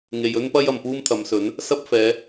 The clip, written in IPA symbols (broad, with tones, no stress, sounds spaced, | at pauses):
ŋ e˨ j ɵ˥ n p ɐ˥ j ɐ˨ m p uː˥ m t̪ʰ ɐ˨˧ m s ɵ˨˥ n | s ɐ˥ p̚ f ɛː˨˧